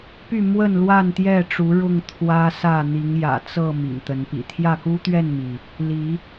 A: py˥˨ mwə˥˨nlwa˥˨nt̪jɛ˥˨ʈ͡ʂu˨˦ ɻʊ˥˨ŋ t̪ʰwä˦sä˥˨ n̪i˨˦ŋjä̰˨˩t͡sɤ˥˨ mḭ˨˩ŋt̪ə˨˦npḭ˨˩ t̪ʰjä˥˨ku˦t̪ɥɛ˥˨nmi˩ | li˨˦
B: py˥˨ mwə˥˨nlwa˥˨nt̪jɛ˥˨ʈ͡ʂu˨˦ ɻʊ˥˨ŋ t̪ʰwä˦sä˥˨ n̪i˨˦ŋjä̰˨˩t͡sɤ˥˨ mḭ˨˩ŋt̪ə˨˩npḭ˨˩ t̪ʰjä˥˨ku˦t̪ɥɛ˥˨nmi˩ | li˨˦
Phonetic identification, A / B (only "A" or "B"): A